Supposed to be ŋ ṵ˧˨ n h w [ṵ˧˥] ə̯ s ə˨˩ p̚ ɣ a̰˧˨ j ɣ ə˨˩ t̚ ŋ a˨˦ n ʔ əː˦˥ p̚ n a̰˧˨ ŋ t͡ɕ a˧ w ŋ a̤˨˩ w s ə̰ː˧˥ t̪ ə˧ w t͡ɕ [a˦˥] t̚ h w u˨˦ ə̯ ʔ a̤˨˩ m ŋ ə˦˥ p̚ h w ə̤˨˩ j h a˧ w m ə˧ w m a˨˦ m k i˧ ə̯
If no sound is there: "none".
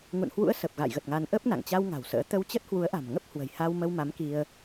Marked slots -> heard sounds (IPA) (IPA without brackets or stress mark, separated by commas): ṵ˧˥, ə˦˥